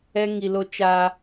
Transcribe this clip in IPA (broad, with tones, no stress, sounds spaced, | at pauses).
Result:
ɛ˦ ŋ i˨ l o˦ t͡ʃ a˦